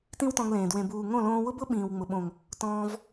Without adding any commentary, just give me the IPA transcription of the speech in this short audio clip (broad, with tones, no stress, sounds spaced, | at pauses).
t ĩ˦ w t ɔ̃˧ ŋ l ẽː˨ d w ẽ˨ b uː˨ ŋ õ˦˨ l õː˧ w ʊ˦ b ʊ˦ ɓ ĩː˨ w ŋ͡m ʊ˨ ɓ õ˨ ŋ | t ɔ̃ː˧ v